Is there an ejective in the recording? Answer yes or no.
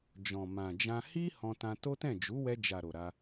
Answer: no